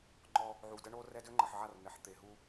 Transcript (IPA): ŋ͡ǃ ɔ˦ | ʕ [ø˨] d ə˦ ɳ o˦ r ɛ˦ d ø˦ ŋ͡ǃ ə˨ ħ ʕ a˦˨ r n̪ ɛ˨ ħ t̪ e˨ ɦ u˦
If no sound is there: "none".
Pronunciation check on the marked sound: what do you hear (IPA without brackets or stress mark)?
u˨